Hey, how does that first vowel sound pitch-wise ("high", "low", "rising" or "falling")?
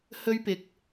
high